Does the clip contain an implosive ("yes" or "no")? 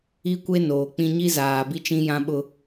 yes